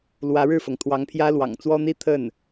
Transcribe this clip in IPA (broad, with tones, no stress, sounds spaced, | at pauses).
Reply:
l w ä˧˥ ɻ ɻ̩˥˩ f ɤ˩ ŋ t̪ʰ w ɑ˧˥ ŋ pʰ j ä˥ l w ɑ̰˨˩ ŋ t͡s w ɔ˥ n̪ i˥˧ t̪ʰ ə˥˩ n